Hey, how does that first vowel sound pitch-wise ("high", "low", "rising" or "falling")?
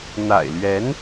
low